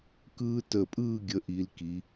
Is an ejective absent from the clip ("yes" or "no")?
no